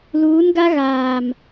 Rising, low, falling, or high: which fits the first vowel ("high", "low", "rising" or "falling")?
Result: rising